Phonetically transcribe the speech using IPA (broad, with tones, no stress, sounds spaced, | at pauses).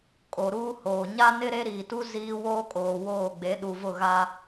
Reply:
kʼ o˨ ɾ uː˦ h oː˨ ɲ a˦ n ɪ˦ ɾ e˦ ɾ iː˨ t u˦ z iː˦ w oː˦ kʼ oː˨ w oː˦˨ ɡ͡b e˨˦ ɗ u˨ v ʊ˦˨ ɣ a˦